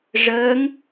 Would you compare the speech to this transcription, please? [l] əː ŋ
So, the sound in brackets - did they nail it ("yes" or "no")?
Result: no